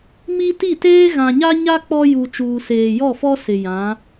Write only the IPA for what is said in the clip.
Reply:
m i˦ t i˦˨ t eː˦ ɣ ã˨ ɲ a˦ ɲ a˦ k͡p ɔ˦ j u˨ t͡ʃ uː˨ s eː˨ j ɔ˦˨ f ɔ˦ s ɪ˨ j ã˨˦

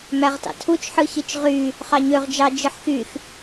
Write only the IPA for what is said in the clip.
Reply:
m æ ʁ t ɑ̰ tʰ u t͡ʃ ħ ɯ ç i t͡ʃ ʁ y | χ ɑ ɲ ø ʁ d͡ʒ ɑ d͡ʒ ɯ ħ x y x

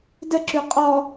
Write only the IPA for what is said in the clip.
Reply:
d ə ǁ ʉ qʼ ɔ

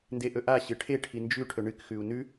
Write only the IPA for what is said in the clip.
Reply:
n d e ʔ ɵ ʔ a ɕ ɨ ʈʰ e ʈʰ i n d͡ʒ ʉ ʈʰ ɵ ɳ ɨ k x ʉ u̯ n ʉ

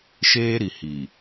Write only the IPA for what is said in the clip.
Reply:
ʃ eː˦ ɾ i˨ h i˨

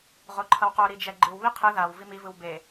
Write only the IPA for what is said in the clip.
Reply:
ʁ o ǃʰ ʌ w q o ɾ i d͡ʒ ɛ ɡ͡ǃ ɯ w β i qʰ ɯ ð a w v i m i v ɯ w b e

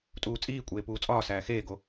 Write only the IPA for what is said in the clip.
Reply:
tʼ uː t͡sʼ iː kʷʼ eː p uː t͡sʼ ɒː s æː x eː ɡ o

